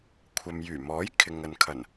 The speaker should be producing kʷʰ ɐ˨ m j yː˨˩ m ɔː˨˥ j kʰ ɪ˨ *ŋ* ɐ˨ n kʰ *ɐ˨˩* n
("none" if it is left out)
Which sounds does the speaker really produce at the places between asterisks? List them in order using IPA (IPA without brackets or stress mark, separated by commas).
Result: ŋ, ɐ˨˩